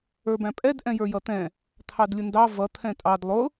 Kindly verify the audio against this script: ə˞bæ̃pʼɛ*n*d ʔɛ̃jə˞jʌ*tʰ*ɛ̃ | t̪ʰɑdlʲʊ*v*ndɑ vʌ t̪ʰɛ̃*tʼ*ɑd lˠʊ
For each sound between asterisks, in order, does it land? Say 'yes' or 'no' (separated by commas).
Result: no, no, no, yes